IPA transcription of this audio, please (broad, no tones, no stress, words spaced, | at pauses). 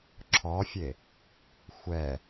ǁʰɔfʲe | xʷɛ